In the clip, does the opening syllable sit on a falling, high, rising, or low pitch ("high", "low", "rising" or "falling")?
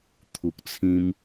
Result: low